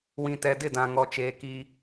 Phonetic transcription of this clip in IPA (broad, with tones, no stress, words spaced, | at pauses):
wĩ˨tɛ˨ dɪ˦˨dã˨ŋɔ˨t͡ʃeː˨ ki˦